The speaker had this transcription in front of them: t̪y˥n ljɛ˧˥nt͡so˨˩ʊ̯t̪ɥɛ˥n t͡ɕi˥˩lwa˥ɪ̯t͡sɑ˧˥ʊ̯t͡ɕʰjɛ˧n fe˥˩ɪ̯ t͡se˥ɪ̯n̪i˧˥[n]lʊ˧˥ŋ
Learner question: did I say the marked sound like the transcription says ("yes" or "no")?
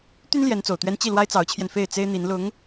yes